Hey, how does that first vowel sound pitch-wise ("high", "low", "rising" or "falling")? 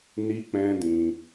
high